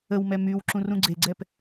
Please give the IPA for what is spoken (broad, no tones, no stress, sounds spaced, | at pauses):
ə w m ɛ m y w ǁ ũ r ũ ɡ͡ǀ e ɡ͡ǀ ɛ p